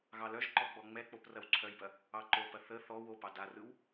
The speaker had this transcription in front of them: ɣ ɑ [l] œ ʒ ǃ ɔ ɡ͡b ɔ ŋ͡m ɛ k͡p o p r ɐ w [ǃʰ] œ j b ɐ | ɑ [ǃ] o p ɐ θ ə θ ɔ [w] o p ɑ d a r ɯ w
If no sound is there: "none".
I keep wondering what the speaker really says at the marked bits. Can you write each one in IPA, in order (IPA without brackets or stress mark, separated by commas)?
l, ǀʰ, ǃ, w